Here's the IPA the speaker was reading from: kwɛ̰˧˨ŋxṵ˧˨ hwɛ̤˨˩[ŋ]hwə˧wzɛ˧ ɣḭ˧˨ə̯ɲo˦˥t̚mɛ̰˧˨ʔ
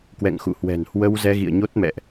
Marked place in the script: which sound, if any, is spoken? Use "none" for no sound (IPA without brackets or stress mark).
n